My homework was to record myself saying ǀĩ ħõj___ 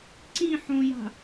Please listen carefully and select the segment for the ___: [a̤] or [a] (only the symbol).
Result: a̤